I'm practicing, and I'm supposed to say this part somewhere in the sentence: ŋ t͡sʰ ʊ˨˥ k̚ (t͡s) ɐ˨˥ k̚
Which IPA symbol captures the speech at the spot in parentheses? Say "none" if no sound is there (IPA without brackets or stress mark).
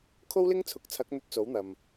t͡sʰ